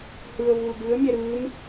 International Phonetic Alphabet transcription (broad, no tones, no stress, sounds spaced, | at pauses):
h ɯ ə̯ v u l d ɯ ə̯ mʲ ɛ ɾ ɯː m